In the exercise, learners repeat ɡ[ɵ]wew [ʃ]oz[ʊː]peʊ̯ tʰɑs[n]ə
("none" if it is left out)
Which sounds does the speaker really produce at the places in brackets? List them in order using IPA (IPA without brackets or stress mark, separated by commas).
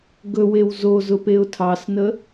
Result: ɵ, z, ʊ, n